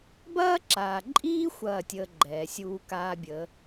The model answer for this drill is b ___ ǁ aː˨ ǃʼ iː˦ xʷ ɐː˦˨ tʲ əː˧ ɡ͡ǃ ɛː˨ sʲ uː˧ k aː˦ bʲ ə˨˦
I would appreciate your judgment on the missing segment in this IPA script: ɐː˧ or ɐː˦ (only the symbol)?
ɐː˦